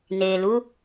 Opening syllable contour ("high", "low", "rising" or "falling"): low